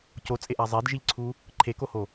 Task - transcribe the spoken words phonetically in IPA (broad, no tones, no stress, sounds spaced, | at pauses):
c o t͡sʼ e ʔ a zˤ e d ʒ i ʎ ǀʰ u | ǃʰ e k o h o